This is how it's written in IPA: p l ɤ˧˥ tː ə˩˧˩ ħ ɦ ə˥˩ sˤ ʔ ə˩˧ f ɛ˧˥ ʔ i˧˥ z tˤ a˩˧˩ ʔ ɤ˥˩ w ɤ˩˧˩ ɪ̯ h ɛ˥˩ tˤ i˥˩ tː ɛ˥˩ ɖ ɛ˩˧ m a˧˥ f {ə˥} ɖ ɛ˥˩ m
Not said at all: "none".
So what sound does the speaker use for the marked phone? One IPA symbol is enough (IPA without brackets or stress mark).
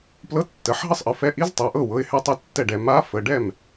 ə˩˧˩